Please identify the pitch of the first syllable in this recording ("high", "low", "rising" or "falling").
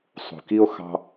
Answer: low